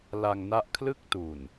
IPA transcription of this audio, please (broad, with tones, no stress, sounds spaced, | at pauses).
l a˧ ŋ n a˦˥ ʔ kʰ l ɯ˥˩ k̚ t u˨˩ n